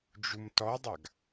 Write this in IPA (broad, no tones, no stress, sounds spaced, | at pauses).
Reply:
d͡ʒ u m t ɔ dˤ a ɡ